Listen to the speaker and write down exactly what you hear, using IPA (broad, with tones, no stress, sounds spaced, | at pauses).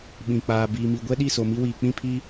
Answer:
ɓ ĩ˨ k͡p aː˨ b iː˨ m i˨ ɡʷ ɛ˦ ɗ i˦˨ s o˨ m i˦ w iː˨ k͡p ĩ˦˨ pʰ i˦